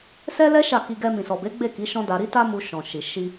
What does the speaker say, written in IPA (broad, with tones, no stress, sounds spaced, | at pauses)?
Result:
s ɛ˦ l ɛ˦ ʃ a˦˨ k i˧ ɡ ɛ˧ m ĩ˨ s ɔ˨ b e˨˦ ɡ͡b e˦˨ k i˨˦ ʃ ɔ̃˦ d a˧ ɾ i˦ t a˦ m u˧ ʃ ɔ̃˨ ʃ i˨ ʃ i˧